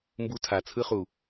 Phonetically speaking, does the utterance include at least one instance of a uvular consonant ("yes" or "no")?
yes